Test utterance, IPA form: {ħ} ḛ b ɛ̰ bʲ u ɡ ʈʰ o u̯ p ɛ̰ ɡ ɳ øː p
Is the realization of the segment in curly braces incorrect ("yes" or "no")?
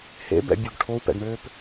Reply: yes